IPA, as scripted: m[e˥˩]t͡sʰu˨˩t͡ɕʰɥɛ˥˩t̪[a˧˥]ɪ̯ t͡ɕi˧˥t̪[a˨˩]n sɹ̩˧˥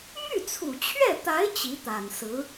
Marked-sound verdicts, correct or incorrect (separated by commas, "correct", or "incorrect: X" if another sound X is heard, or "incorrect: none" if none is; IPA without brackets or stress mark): incorrect: y˥˩, correct, correct